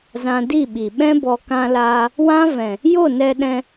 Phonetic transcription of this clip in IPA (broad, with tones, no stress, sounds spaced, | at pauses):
z ã˧ d i˦˨ ɓ i˨ ɓ ɛ̃˦ b ɔ˧ k ã˧ l aː˧ | w ã˦ v ɛ̃˨ | j o˦˨ n ɛ˧ ɗ ɛ̃˧